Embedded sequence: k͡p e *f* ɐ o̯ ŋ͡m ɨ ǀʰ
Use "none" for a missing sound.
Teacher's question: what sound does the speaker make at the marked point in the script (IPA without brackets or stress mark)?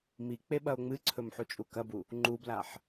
ɓ